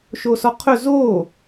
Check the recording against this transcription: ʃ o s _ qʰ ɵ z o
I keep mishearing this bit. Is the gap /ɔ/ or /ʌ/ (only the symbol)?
ɔ